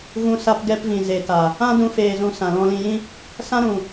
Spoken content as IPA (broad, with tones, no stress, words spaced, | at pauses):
ɣũ˧sa˧p ɡɛ˧pvĩ˨ ze˨ta˨ | ã˦dũ˧ feː˧zũ˧sã˨ lɔ̃˧lĩ˧jĩ˦ | sã˦ɾũ˨